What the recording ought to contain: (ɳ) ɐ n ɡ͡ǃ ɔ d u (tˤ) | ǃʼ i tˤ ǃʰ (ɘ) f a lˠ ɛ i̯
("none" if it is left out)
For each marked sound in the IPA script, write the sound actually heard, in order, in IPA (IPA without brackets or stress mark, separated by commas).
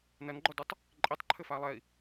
n, tˤ, ɘ